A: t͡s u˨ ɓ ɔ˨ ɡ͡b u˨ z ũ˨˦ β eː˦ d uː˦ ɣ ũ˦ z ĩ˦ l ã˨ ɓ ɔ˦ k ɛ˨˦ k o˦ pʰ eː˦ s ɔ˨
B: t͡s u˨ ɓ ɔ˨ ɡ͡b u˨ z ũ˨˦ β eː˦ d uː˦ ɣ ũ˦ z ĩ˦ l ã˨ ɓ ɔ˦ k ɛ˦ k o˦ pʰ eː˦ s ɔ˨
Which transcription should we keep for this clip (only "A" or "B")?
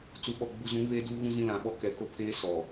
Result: A